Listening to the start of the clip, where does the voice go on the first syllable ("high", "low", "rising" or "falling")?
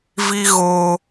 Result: high